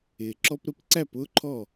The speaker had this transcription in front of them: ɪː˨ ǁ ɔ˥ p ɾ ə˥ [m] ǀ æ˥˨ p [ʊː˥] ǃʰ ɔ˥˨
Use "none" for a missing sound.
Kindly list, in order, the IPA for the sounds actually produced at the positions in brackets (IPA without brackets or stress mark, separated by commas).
p, ʊː˥